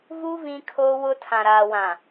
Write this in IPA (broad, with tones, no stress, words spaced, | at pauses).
vu˦ vĩ˦kʰoː˦wʊ˦ tʰã˨ɾaː˨wã˨